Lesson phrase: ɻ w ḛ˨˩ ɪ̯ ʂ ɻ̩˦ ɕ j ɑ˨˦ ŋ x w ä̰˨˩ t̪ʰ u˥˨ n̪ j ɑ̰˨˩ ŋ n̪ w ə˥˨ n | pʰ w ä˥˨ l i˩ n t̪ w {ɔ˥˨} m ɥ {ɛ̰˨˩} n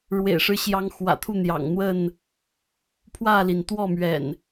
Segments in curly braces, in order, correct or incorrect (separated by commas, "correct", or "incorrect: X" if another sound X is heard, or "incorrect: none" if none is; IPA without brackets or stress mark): correct, correct